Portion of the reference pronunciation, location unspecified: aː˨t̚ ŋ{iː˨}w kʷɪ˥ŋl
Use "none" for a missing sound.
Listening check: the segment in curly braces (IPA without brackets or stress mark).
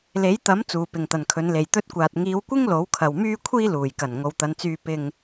iː˨˧